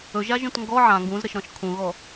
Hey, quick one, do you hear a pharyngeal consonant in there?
yes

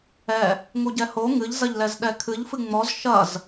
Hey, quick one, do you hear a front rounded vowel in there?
no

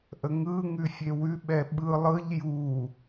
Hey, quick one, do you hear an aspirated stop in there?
no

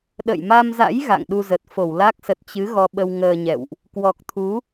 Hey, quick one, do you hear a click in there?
no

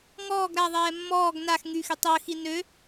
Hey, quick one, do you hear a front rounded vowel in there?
yes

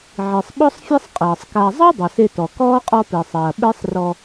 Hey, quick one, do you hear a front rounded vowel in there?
no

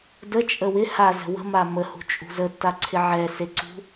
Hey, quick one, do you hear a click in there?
yes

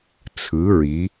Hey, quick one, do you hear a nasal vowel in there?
no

